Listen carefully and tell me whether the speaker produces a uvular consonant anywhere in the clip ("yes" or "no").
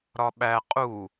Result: yes